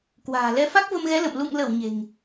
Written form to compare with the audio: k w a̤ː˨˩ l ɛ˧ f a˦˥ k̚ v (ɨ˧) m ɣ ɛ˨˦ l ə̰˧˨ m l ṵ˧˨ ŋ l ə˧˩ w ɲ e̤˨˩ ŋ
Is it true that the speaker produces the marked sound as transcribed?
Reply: no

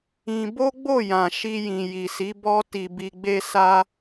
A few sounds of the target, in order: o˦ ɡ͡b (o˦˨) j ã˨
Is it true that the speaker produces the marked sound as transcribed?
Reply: yes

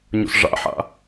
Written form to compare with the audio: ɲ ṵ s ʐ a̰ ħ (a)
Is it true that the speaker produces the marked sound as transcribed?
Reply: no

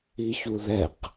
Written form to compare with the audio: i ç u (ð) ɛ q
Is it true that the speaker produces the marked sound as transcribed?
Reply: yes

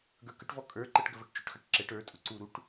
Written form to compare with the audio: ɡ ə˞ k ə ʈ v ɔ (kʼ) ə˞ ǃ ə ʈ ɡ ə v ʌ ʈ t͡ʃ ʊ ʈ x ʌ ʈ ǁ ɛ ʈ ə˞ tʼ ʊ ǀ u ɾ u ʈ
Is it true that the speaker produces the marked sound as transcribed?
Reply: yes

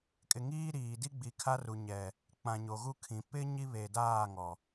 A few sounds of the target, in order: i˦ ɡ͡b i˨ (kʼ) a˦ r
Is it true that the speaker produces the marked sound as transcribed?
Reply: no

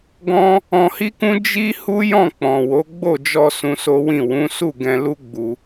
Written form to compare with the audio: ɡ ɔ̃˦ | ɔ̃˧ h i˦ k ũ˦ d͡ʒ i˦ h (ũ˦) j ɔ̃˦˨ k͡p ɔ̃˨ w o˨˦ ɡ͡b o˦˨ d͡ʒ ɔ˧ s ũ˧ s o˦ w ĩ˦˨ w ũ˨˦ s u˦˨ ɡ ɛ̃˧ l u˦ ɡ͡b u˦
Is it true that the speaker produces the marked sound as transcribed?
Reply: no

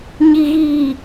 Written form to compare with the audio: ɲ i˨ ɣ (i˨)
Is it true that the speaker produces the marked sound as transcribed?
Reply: no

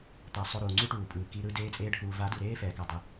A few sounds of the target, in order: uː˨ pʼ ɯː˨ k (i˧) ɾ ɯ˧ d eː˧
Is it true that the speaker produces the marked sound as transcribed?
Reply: yes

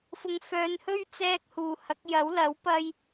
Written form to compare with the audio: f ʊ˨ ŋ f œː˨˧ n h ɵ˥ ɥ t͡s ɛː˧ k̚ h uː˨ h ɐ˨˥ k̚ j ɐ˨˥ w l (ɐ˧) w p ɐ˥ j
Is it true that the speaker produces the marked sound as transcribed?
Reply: no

